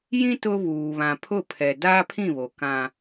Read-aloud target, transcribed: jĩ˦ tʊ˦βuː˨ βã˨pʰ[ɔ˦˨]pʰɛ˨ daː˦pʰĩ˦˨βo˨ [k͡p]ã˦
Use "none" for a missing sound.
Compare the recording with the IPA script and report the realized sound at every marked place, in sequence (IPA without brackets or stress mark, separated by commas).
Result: ʊ˦˨, k